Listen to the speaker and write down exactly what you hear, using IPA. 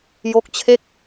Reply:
j o˦˥ k̚ t͡ɕʰ e˥˩ k̚

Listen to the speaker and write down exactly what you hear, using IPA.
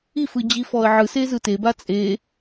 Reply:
i f ɯ d͡ʑ i f ɔ ə̯ ʕ ɯ s e z ɯ t e b a t͡sʼ e

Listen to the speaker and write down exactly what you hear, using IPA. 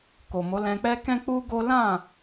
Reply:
k o˨ m o˨˦ l ɛ̃˧ k͡p ɛ˦ k ɛ̃˦ k͡p u˦ ɡ o˦ l ã˦˨

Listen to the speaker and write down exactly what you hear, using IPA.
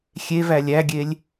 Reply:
xʲ e v æ lʲ æ ɡʲ e lʲ

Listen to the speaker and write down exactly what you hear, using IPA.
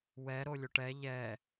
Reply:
w ɛ ɾ o lʲ o ʈ ɛ ʎ ɛ

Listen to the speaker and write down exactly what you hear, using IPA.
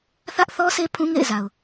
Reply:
θ ä˦ ʔ θ ɔ˦ sʰ e˦ pʰ ũ˦ ŋ ḛ˦˨ ɪ̯ z a˨ ʊ̯

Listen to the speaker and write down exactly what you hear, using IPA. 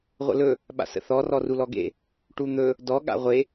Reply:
ʁʷ ə̰ l ɵ | ɓ a̰ s ə̰ θ ɔ r ɔ r u l ɔ ɡ ḛ | ʈ u n̪ ɵ | d ɔ ɠ a̰ ʁʷ e

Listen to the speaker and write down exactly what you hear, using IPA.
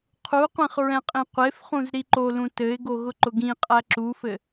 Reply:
qʰ u qʷ ĩ χ ɹ ɛ̃ qʼ ĩ qʷ e f χ ũ z ɾ i ǃ o l ũ t ɘ ɪ̯ ɡ o ɣ ʊ ǃ ʊ ɡ ĩ qʼ æ ǁ u f ɘ

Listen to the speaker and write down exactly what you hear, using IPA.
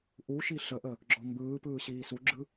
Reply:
ʔ u ʃ i ɬ ə ʔ ə | ɡ͡ǁ ɔ m b ɯː p ɯː ɕ iː s u ɡ͡ǁ ɯ

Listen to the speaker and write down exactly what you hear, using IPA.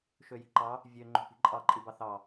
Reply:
ʃ ø j i̤ ǃ ɑ | vʲ ø ŋ͡ǃ o̤ p i̤ ǃʼ ɑ ǃʼ i b ɑ θ ɑ

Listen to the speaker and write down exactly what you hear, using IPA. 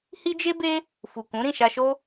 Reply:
h i˦ d͡ʒ e˦ b e˦ | f u˨ k ũ˨˦ ɾ ĩ˦˨ ʃ a˧ ʃ o˦

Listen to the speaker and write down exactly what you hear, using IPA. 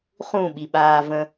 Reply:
χ ũ ɓ i ɓ aː v ə̃

